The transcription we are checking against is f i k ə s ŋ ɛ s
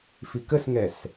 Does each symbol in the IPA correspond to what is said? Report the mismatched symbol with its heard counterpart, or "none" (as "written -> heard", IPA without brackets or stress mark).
none